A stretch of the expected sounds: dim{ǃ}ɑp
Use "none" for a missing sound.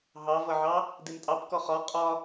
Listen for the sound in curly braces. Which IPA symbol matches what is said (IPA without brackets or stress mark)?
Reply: tʼ